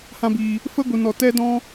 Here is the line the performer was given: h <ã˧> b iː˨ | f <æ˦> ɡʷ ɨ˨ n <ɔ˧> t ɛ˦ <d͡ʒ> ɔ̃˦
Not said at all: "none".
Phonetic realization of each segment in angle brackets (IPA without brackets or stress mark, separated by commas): ã˧, ə˦, ɔ˨, d